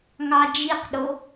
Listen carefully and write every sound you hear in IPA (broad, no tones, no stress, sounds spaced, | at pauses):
ŋ ɑ d͡ʒ i q ɗ o